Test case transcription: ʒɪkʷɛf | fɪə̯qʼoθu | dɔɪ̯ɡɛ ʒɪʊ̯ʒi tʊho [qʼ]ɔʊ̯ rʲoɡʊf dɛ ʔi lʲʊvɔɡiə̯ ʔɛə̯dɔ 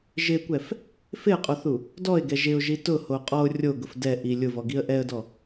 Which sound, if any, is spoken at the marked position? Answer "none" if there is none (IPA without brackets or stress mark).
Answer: qʼ